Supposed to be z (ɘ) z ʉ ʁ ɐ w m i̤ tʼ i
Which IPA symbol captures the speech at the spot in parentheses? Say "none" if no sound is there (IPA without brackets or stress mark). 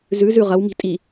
ʉ